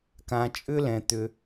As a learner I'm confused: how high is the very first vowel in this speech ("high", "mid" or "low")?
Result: low